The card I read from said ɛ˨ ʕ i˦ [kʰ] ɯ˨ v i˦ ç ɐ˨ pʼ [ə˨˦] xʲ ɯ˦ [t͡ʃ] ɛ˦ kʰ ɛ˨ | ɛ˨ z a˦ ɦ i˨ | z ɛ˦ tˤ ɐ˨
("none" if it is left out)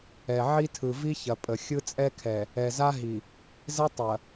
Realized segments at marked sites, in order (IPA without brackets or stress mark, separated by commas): tʰ, ə˨, t͡sʼ